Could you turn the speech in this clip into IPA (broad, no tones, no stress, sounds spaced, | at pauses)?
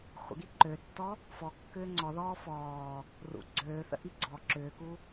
χʷ ə̰ ɡ i ǃ ø tː ɔ | f ɔ kː ʏː ŋ͡ǀ ɔ ð ɔː f ɔː | r ṵ ɡ͡ǀ øː θ ə̰ ʔ i ɡ͡ǀ ɔ ǁ ʏː k u